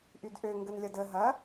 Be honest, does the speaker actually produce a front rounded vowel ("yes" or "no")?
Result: yes